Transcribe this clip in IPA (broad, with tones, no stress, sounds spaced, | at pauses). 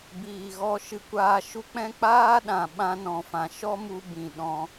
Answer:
b iː˨ ɣ ɔ˧ ʃ ɨ˧ kʷ aː˧ ʃ u˦ k͡p ɛ̃˦ k͡p aː˦ ɗ ã˨ ɓ ã˧ n ɔ̃˨ f ã˨ ʃ ɔ˦ m u˧ b ĩ˨ ɗ ɔ̃˧